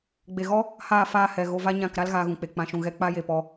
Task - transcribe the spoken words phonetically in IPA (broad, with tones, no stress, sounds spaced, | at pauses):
ɡ͡b e˨ ɣ ɔ˦ | h aː˦˨ f aː˧ h ɛ˨ ɣ o˧ v a˦ ɲ ã˦˨ k ɾ a˦ l ɣ aː˧ ɣ ũ˨ k͡p e˨ k͡p ã˨ ʃ ũ˨ ɣ ɛ˧ k͡p a˦ j e˧ p ɔ˧